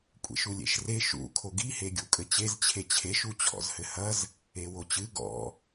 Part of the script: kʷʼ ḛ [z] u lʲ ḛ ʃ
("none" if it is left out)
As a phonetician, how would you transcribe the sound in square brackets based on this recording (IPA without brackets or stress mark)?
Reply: ʃ